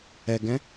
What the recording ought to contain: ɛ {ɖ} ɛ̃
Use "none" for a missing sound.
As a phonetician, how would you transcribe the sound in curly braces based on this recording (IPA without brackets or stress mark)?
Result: ɡ